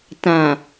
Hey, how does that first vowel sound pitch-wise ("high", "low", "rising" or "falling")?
low